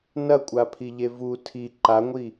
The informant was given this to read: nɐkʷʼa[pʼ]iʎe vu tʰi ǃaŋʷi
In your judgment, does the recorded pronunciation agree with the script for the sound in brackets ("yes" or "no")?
no